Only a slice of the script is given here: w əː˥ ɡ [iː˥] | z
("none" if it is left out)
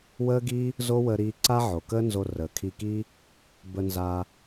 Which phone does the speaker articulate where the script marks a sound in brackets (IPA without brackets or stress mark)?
iː˥